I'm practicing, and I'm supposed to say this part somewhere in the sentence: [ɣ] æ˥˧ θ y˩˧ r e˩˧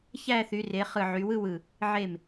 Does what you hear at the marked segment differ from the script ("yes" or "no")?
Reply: yes